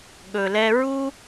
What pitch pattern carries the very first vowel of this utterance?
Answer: low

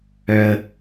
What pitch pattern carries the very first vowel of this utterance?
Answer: high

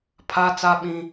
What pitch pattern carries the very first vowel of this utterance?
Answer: high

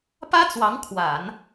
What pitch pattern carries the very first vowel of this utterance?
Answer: high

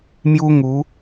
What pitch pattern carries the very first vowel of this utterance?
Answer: high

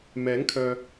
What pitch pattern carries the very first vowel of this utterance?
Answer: rising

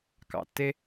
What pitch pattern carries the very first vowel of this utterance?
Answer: low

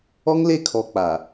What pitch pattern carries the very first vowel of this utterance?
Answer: high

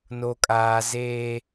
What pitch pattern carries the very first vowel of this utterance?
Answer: low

